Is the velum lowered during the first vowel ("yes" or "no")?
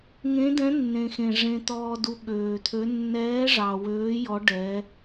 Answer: yes